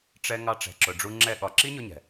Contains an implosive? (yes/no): yes